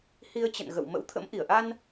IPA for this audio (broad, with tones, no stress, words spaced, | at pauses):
hi˧ə̯t͡ɕə̰˧˨nɣə̰˧˨w mə̰˧˥wt̪ʰə̰˧˥mʔi˧˩ə̯ ʔa˧n